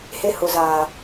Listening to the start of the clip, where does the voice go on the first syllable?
low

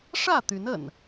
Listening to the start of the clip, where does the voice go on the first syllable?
falling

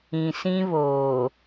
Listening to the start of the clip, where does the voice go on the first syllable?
low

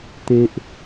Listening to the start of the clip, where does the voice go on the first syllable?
low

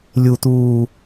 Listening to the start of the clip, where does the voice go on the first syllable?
low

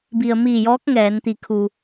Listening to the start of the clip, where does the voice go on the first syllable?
low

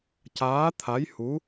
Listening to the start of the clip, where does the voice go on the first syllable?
rising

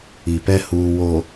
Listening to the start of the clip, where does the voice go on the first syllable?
low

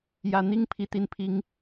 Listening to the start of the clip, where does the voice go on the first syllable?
low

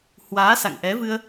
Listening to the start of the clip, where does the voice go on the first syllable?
rising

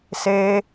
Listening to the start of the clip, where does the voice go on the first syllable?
high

